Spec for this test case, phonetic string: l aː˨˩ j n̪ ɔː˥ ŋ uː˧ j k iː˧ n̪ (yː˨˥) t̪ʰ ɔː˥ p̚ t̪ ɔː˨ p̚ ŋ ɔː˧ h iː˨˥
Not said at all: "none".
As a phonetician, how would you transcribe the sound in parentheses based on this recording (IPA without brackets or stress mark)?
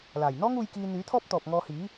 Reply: yː˨˥